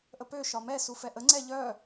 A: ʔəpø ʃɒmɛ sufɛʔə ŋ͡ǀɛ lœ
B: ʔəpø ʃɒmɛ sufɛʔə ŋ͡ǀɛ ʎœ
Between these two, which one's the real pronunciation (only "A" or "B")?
B